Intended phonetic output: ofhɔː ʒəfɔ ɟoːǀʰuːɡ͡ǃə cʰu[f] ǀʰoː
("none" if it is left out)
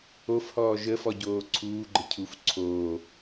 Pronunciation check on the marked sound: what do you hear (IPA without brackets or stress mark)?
f